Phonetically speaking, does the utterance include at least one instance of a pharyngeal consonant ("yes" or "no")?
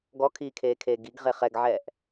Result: yes